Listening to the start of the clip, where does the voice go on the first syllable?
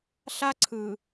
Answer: high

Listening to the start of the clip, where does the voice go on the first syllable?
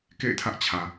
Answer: falling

